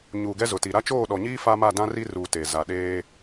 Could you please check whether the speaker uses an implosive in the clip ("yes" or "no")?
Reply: yes